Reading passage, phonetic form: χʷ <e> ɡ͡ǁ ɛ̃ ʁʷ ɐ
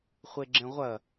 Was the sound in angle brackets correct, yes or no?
yes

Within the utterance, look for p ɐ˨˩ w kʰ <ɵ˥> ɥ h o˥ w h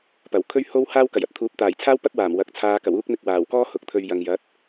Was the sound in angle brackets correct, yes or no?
yes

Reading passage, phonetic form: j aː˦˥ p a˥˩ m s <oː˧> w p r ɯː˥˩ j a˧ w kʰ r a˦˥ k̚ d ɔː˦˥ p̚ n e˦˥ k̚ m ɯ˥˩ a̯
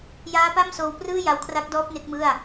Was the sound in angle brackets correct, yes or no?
yes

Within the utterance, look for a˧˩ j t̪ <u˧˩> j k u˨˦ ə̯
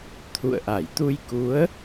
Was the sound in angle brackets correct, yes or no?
no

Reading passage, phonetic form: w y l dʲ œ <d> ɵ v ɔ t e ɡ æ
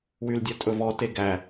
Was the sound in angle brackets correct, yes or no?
no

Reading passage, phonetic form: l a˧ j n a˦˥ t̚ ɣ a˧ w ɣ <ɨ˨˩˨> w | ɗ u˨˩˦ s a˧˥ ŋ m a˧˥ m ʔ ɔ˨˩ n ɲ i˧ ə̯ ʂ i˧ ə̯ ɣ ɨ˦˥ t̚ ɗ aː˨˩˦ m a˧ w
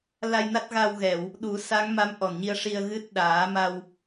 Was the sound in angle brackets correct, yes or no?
no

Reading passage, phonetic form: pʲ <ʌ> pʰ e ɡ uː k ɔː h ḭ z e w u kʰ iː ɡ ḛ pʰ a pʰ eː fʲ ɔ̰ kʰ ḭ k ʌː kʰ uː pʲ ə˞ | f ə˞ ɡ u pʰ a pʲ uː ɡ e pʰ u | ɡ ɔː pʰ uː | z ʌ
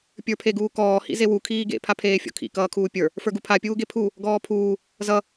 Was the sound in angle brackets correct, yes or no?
no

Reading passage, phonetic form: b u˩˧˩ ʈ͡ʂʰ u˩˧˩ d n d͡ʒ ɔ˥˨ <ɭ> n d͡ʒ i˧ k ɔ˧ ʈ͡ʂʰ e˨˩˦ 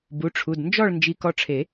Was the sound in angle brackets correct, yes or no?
yes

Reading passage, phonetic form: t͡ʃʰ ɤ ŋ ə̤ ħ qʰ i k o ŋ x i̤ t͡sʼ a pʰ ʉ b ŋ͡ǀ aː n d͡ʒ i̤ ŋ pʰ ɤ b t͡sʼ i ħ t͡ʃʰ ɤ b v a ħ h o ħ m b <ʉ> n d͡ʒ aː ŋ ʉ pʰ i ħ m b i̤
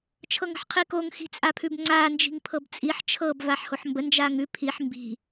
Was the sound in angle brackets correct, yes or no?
no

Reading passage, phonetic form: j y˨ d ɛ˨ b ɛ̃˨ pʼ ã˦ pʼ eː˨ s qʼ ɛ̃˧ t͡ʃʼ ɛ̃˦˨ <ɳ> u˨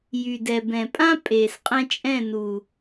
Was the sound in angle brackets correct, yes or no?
no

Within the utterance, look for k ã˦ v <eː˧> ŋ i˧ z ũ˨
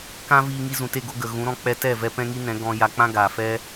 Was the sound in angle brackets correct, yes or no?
no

